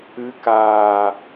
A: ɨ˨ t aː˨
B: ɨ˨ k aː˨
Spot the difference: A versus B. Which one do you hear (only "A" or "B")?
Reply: B